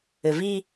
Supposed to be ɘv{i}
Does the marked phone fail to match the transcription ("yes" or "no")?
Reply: no